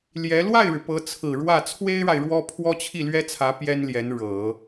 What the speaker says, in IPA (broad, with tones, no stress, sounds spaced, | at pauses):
l j ɛ˧˥ l w a˥˩ ɪ̯ ɻ ɻ̩˩ p ɤ˧˥ t͡sʰ ɹ̩˨˩ ɻ w ä˥˩ t͡sʰ w e˥ ɪ̯ ɻ a˨ ɪ̯ ɻ w ɔ˥ pʰ w ɔ˥ t͡ɕʰ i˥˩ l ɥ ɛ˥ t͡sʰ ä˧˥ p j ɛ˥ n l j ɛ˧˥ n ɻ ɤ˨˩˦